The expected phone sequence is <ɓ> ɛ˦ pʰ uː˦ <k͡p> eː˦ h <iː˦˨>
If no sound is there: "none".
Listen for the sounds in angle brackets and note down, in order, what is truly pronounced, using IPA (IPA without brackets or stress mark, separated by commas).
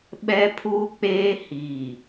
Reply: ɓ, k͡p, iː˨